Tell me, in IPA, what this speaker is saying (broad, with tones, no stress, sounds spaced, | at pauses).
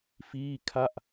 f iː˥˩ kʰ a˥˩ ʔ